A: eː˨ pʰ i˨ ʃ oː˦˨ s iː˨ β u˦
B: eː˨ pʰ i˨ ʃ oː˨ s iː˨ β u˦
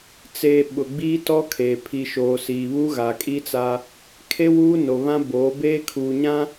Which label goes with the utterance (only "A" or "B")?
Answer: B